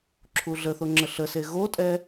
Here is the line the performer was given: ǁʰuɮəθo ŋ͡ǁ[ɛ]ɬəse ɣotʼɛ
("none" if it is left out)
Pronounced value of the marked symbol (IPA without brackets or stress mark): ə